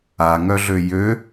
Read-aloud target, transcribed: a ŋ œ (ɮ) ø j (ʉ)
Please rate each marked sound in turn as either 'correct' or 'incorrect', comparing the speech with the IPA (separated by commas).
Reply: correct, incorrect